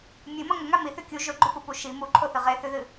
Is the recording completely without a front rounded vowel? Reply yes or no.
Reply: yes